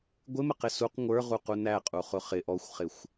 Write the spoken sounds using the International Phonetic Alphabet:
ɡʷ ɪ m ə q ɪ s u q ŋʷ ə˞ ʁ u q u n æ qʼ u χ ʊ χ ɪ ʔ ɔ xʷ χ ɪ xʷ

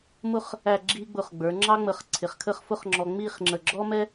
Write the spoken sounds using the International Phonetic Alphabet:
m ʊ˥˧ χ | æ˥˧ ɡ͡ǁ i˥ ɡ͡b ʊ˧ χ ɡ͡b ə˞˩˧ ŋ͡ǁ ɑ˥ ŋ͡m ə˧˩ χ ǀʰ ɪ˩˧ χ kʰ ə˥˧ χ f ʊ˥ χ ŋ͡ǁ ɔ˧ ŋ͡m i˥˧ χ ŋ͡ǁ ə˧˩ ɡ͡ǁ ɔ˥ m ɛ˥

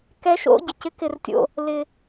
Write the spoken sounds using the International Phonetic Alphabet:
k ɛ˦˥ ʃ o̰˦˥ ɟ ɪ˩ c ɪ˦˥ k ɪ˧ r tʲ o̰˧ | l ɪ˧

